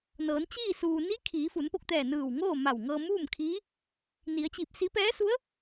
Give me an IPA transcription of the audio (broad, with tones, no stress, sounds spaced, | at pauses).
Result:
n ɤː˩˧ n t͡ɕ iː˥˨ s uː˩ n i˧˥ kʰ iː˩˧ f u˩˧ n p o˧ k̚ t̪ ɛː˧˩ n ɯː˧˩ w ŋ oː˥˨ m a˧˩ w ŋ ɤː˧ m uː˥˨ m kʰ iː˧˥ | n i˩˧ ə̯ t͡ɕ i˧˩ p̚ s iː˧˥ p ɛː˧˥ s u˧˥ ə̯